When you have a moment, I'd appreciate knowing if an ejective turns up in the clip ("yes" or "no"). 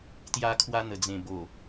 no